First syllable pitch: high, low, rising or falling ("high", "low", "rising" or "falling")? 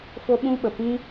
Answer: high